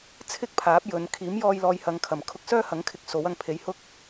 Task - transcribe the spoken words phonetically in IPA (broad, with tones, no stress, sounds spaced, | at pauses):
t͡sʰ ɪ˥ k̚ pʰ aː˨˥ p̚ j ɵ˨˧ n kʰ iː˨˥ m j ɔː˧ j l ɔː˨ j h ɐ˨ ŋ kʰ ɐ˨˩ m kʰ ʊ˧ k̚ s œː˥ h ɐ˨˥ ŋ kʰ ɪ˧ k̚ s o˨˥ w ɐ˧ ŋ pʰ e˨˧ j h ʊ˥ k̚